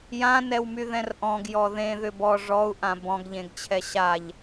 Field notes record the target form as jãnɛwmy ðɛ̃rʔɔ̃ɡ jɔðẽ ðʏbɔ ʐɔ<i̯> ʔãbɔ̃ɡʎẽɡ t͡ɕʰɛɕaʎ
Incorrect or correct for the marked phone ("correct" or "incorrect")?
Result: incorrect